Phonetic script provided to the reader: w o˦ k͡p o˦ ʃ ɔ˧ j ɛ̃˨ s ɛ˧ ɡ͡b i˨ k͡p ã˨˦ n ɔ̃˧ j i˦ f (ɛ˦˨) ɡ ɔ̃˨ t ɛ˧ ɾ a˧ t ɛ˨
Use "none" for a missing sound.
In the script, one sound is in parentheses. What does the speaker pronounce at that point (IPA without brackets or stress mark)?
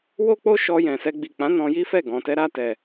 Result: ɛ˦˨